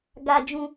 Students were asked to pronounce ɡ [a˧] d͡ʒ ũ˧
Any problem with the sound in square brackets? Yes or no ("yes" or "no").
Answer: no